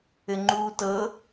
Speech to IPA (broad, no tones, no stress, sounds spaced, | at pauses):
ɘ ŋ͡ǃ uː t ɤ